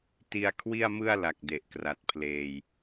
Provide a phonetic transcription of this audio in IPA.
ti˧a̯kʰwi˥˩a̯mɯ˥˩a̯la˨˩k̚ de˨˩ʔkra˨˩t̚pʰleː˧j

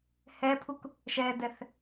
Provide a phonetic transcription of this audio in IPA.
hɛpʰuk | ʃɛdɛθ

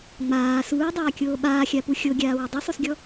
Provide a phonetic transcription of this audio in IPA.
ŋ͡maː suːdˤaːkʲoː ɓaːxʲapu xʲoɡʲaːwɪ dˤusˤusɡʲɔ

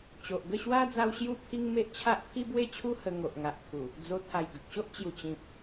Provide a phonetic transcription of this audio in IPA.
t͡ɕo˨ʔɡə˥˧ɕwa˦ d͡za˦w ɕju˥˧pʰi˦ŋme˦ʔ t͡ɕʰa˦ʔ pʰi˦bwe˥˧t͡ɕʰu˦ hə˧ŋo˨ʔŋa˨ʔkʰu˨˩ | d͡zo˧t̪ʰa˨˩j ɡə˨k̚ɕo˦ʔ t͡ɕju˨˩t͡ɕĩ˨p̚

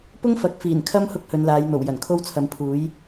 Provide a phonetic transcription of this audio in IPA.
pʊ˥ŋfɐ˨˥k̚ fiː˨˩nkʰɐ˥m hʊ˥k̚hɵ˨˧nlaː˨˧jn̪o˨˩w jɐ˨˩nkʰo˥wt͡sʰɐ˨˧mpʰuː˨˥j

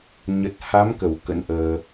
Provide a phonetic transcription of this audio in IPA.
ɲə˨˩t̚ha˨˦mkə˧˩w kə̰˧˥nʔəː˧

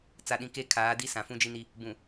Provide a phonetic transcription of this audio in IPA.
t͡sa˨ɗĩ˨ke˦˨ kʰaː˨˦di˦ sã˨fũ˦d͡ʒi˦ni˦ | bũ˨

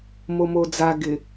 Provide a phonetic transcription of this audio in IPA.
momod͡za ɡɪ

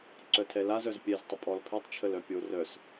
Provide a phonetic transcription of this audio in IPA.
ǀœtʰɛlaz œzpʲɛztˤə pʼɔlpʰɛtˤt͡ʃʰəl œpʲo rœs

